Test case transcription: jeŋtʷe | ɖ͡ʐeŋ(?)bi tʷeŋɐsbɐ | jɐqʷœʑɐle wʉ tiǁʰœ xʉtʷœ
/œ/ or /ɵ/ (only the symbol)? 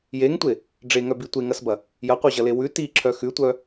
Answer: œ